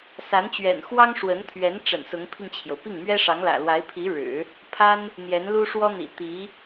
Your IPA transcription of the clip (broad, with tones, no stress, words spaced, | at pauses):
sa˧˥nt͡ɕɥɛ̰˨˩n xwɑ˥ŋʂwə˧˥nt̪ʰɥɛ˧˥n ʈ͡ʂə̰˨˩nsʊ˧˥ŋpʰi˧ŋt͡ɕʰjo˩ʊ̯ pi˥˩ŋmɥɛ˥ʂɑ˧˥ŋlä̰˨˩ lwa˧˥ɪ̯pʰi˧˥ɻɻ̩˨˩˦ | pʰa˥n | n̪jɛ˧˥nlu˥ʂwɔ˥n̪ḭ˨˩ t̪i˧˥